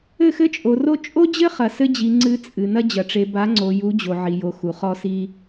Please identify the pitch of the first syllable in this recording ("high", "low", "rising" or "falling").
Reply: falling